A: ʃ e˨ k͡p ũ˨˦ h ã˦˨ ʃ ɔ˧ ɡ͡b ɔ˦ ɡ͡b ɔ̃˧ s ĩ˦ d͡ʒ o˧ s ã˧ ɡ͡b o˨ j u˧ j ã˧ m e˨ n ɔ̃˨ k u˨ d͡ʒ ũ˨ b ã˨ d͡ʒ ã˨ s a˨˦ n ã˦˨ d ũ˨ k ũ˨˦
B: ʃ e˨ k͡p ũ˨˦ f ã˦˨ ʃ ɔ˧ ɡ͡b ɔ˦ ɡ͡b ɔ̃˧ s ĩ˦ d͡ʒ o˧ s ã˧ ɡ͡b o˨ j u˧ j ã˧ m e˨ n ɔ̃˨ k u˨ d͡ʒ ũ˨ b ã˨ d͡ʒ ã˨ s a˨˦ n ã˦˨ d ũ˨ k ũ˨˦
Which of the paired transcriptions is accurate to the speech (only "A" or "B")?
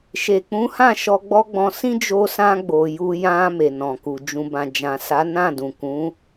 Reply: A